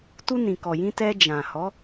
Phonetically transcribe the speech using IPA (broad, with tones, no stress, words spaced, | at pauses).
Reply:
tu˧nĩ˨kɔ˨jĩ˧ tɛ˧d͡ʒã˨ hɔ˨˦